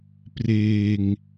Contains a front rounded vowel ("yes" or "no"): no